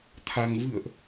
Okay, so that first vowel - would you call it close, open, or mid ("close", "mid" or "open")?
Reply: open